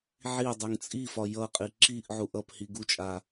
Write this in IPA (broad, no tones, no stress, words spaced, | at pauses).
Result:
ʕidˤuŋ t͡sʼifɒ jʌqʼi ǁiʔʕuʔ ʌphi ɡut͡ʃʼa